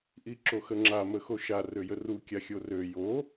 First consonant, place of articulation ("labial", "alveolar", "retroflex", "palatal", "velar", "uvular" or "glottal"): glottal